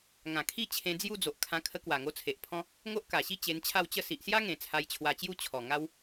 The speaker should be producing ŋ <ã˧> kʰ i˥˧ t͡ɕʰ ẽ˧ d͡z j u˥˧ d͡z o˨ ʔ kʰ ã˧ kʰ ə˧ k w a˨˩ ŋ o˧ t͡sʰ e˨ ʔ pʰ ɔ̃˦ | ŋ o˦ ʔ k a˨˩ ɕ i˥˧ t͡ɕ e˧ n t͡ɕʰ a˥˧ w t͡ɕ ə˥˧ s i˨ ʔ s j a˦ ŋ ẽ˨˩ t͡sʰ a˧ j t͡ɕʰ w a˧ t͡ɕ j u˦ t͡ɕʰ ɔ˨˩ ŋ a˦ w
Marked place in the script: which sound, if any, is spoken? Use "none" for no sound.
ã˨˩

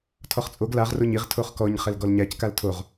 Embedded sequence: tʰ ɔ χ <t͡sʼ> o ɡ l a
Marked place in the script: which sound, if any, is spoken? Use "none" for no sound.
t͡sʼ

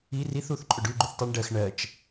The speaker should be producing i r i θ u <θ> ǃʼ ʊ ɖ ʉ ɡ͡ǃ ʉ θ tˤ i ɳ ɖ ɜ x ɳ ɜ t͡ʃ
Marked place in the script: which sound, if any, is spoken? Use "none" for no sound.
θ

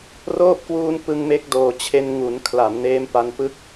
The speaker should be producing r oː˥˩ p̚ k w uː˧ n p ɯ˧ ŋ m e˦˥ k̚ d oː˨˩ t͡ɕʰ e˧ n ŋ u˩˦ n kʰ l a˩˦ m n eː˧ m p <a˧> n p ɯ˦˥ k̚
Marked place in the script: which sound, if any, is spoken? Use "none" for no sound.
a˧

